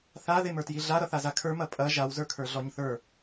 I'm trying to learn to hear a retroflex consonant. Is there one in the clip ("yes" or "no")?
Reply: no